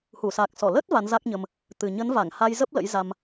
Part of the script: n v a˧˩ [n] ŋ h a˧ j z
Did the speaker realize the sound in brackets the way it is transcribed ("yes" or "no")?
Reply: no